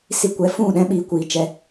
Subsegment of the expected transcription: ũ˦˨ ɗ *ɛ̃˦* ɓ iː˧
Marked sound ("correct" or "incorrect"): correct